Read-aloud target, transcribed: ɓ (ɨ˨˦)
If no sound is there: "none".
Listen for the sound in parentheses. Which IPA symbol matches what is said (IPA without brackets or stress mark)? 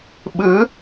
ɨ˨˦